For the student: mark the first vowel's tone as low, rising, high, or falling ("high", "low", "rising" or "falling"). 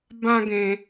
high